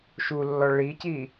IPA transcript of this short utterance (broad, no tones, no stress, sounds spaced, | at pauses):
ʃ u lː ɔ ɭ i c i